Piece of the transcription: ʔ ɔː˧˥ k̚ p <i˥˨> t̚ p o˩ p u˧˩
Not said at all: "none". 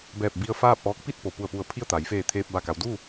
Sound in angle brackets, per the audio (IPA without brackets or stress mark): i˥˨